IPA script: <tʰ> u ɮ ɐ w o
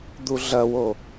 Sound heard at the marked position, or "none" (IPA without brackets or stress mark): d̪